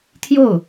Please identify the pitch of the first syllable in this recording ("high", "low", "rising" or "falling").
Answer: falling